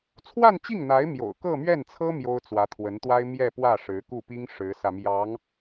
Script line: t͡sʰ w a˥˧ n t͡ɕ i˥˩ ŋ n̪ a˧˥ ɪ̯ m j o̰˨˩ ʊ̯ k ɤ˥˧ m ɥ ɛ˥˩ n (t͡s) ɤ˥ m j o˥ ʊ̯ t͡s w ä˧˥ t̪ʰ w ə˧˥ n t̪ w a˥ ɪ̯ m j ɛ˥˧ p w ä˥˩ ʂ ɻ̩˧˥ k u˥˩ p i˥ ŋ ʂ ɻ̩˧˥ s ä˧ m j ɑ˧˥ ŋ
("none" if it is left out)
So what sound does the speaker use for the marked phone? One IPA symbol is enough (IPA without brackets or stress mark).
t͡sʰ